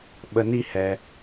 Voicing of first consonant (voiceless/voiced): voiced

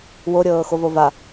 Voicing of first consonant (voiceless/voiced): voiced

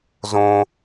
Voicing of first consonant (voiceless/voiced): voiced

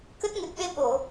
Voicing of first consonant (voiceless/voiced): voiceless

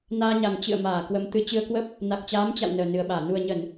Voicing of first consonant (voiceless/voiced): voiced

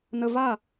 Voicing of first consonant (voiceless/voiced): voiced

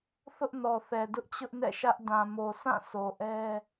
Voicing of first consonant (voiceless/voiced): voiceless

